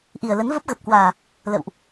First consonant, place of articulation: glottal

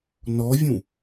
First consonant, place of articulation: alveolar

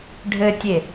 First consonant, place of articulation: retroflex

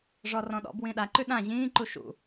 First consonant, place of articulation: retroflex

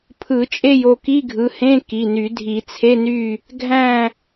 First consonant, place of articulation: labial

